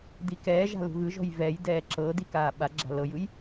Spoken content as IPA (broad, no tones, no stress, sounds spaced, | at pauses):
d i k ɛː ʒ a̤ l ṳ ɣ ɯ ʒ ɔ̤ j v ɛ j d ɛː ǁ ɤ d i k aː ɓ a ɡ͡ǁ a̤ l ɤ j ɯ j